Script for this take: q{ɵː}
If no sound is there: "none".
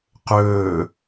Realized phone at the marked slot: ɵː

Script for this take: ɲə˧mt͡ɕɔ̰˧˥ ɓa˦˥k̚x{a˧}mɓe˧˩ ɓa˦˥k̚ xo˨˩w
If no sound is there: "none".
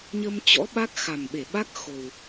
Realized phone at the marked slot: a˨˩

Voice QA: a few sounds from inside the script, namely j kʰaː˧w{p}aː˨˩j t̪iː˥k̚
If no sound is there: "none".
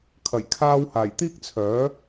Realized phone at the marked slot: h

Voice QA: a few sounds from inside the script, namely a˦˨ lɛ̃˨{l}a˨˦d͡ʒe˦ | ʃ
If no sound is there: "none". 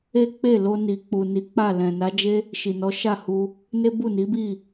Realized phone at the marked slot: n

